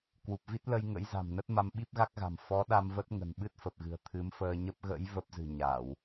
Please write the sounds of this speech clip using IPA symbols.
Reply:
kwu˨˩p̚vi˦˥t̚lə˧j ŋə̰˧˥jza̤˨˩mnə˦˥t̚ ma˧mɓi˦˥p̚ɣa˦˥k̚ɣa̤˨˩m fɔ˨˦ ɗa˧mvə˦˥t̚ŋə̤˨˩n ɓɨ˦˥t̚fə˨˩p̚ɣɨ̤˨˩ə̯ t̪ʰɨ˨˦mfəː˧ɲə˦˥p̚ ɣə̰˧˥j və˦˥p̚zɨ̤˨˩ ɲa˧˩˨w

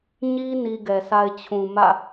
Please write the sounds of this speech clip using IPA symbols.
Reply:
ɲi˦ ni˦ɡɛ˨sa˦ɪ̯ t͡ɕʰũ˨mä̰˦˨

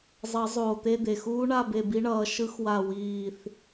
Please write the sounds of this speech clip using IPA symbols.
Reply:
zˤʌ˨˩˦zˤoː˩t̪e˧˥˧ d̪e˩xuː˦˥ ɳa˧˥˧be˦˨bi˦˥ɳʌː˨˦ ʃɯ˦˥xwa˦˨ wiː˦˨θ

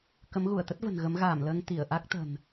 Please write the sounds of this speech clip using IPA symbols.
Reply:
kə˨˦mɣu˧˩ə̯t̪ə˦˥t̚və̤˨˩n ɣə˨˦mɣaː˧˩mləː˧ŋ t̪i˧˩ə̯ʔa˦˥k̚t̪ə̤˨˩n

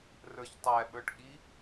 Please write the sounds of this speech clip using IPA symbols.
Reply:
rə˞çtˤæɓə˞ʈ ɠi

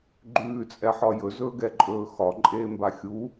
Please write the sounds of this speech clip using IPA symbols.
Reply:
ɡ͡ǃʉːt͡sʼɛħɒ jɵzɵːɡɛǃʼɵː xɒǃʼeːmba xʲu

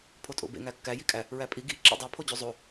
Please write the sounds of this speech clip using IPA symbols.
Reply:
pʰotʼo̰bḛ ŋækːæ jikʼæ | ɹæpʼi ɡi ǁḛdˤo pʰod͡ʑuzˤo

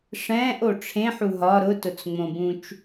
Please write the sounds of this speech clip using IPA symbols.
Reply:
ʂɛ̃ːʔo ʈ͡ʂʰẽħu ɦɒ ɾʊtʊt͡sŋ͡mõbũt͡ʃ

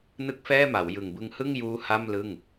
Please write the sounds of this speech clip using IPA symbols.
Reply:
nɯ˥˩k̚fɛː˥˩ma˩˦w jɯ˨˩ŋbɯ˦˥ŋhɯ˥˩ŋjuː˦˥ ha˥˩mlɯ˥˩ŋ

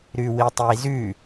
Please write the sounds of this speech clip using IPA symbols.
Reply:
ɾʉwitˤizʉ

